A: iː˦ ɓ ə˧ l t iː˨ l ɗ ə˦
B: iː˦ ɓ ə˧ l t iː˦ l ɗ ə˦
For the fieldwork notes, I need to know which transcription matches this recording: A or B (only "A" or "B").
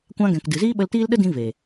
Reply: B